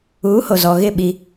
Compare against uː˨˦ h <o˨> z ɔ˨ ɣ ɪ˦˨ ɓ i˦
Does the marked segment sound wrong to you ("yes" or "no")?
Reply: no